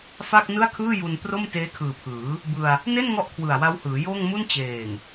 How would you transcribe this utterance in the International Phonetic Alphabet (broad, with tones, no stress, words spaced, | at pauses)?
fa˥˩k̚ nɯ˥˩a̯kʰɯː˥˩ju˧n pro˥˩mteː˦˥kʰɯː˨˩ pʰɯː˩˦ | bɯ˧a̯ | ne˥˩n ŋɔ˥˩ʔkʰwɯ˨˩a̯wa˦˥whɯː˩˦ joː˥˩ŋmu˥˩n t͡ɕeː˨˩ŋ